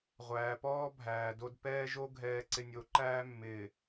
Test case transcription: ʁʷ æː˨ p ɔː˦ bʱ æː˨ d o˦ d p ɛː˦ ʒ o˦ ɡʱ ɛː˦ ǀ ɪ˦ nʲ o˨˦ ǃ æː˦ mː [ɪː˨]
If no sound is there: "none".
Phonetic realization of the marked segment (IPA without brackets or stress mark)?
ɪː˨